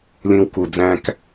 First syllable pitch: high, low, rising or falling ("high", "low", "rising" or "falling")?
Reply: high